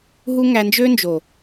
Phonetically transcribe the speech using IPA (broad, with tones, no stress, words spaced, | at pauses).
ɦu˦ŋæ˧ nd͡ʒø˦nd͡ʒo˨